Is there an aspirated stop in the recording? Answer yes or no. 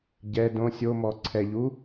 yes